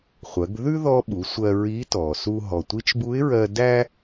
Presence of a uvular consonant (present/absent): present